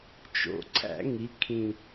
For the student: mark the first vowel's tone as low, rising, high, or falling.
low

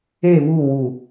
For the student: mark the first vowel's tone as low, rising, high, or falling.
falling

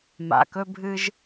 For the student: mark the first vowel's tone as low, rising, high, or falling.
low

